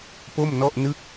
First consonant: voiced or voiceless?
voiceless